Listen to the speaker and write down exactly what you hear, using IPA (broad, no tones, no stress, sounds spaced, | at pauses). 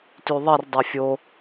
t y ðˤ i r dˤ ɛ fʲ o